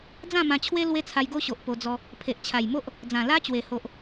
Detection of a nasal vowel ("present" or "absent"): present